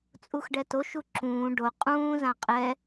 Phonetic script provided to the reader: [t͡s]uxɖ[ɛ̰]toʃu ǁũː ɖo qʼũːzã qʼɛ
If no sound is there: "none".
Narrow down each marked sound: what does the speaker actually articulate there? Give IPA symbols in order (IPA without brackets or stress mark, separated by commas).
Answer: t͡sʼ, ɛ